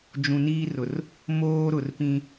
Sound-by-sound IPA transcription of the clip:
d͡ʒũ˨niː˦rʊ˨r | moː˦ɾʊ˨rpĩ˦

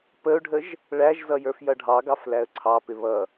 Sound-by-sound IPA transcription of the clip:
pəʊ̯ɖʱəʒ | ɭæʒzʌ jə˞fjʌɖʱɑɡɑf læə̯ǀʰɑpɪ βʌ

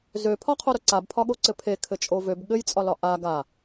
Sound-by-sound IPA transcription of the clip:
zøpʰɒqʰoɾo ǀabpʰɒɠoǀɘ pʰekʰɘt͡ʃʼo vøb ɠɘjt͡sʼɒlɒ ʔa ɡa

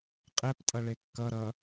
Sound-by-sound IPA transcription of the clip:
qʼɛp tʼʌɭekːʌ ɾʌ

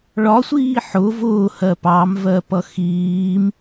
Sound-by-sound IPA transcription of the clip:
ɭɒsʷiː ħʊ vʊːhɜ pɑmvɜpʌ xiːm

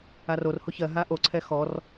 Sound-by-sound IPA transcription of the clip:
arorho çɜɦa ʔoǀʰɛ xɔr

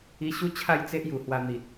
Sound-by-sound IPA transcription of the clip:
i˧ɕu˦ t͡ɕʰa˥˧jt͡se˦ʔ ju˨˩hwa˧n̪i˨t̚

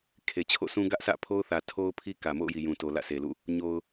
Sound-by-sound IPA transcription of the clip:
kʰe˨t͡ɕʰo̰˦˨sʰũ˦ ɡä˦ʔsä̰˦˨pʰo˦ʊ̯θä˨ tʰo˦ʊ̯pʰi˦ kä˨mo̰˦˨ʊ̯ji˨jũ˨ to˨lä̰˦˨sʰe˨lṵ˦˨ | ɲo˨ʊ̯

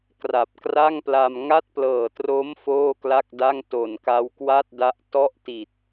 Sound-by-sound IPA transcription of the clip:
kra˨˩p̚kra˥˩ŋpla˧m ŋa˥˩t̚plɤː˨˩tro˦˥m foː˥˩kla˥˩k̚da˥˩ŋ to˨˩nka˦˥wkwa˥˩t̚da˦˥ʔ tɔ˦˥ʔti˨˩t̚

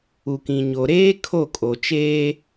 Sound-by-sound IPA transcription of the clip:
u˨kĩ˨ɲo˨ɾeː˦ kʰo˦˨kʼo˨t͡ʃeː˦

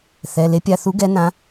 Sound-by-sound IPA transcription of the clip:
θɛ˩˧˩ le˨˥pʲa˩˧˩θu˨˥ ɡɛ˨˥nã˨˥

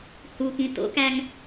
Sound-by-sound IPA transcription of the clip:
hukĩ to̰kæŋ

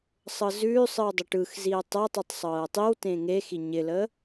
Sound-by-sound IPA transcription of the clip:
sˤɤzʉːsˤɯw dˤɪʈɯxziə̯ tˤəʊ̯tˤʉtˤ sˤɤːtˤiwtẽ ŋexi ɲɪləː

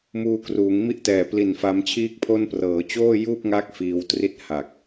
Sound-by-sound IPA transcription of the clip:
muː˧kruː˩˦ŋ mi˦˥ʔtɛː˨˩pli˨˩n fa˦˥mt͡ɕʰiː˥˩k̚pʰo˥˩n prɤː˩˦t͡ɕoː˥˩juː˥˩p̚ŋa˦˥k̚ fiː˧wtri˥˩t̚ ha˨˩k̚

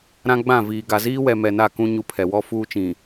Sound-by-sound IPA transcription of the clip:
ɾã˦ɡ͡bã˦˨ viː˨ɡa˨ ziː˦wɛ˨ mɛ˨na˦˨kũ˦ ɲu˦pʰɛ˨ wɔ˦fuː˦t͡ʃĩ˨

